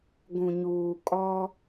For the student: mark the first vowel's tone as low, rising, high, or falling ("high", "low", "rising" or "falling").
low